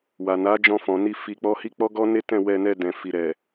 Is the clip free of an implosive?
yes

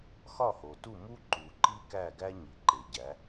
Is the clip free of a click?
no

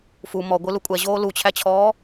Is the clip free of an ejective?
no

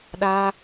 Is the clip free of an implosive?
no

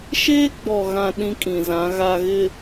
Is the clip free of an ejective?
no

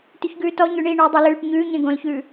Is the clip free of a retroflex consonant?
no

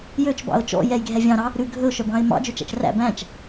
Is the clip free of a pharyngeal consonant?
yes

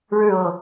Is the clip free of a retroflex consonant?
no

